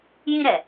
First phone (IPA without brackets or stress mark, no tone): j